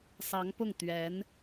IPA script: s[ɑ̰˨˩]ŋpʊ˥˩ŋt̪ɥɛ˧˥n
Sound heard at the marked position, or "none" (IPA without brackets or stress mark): ɑ˧˥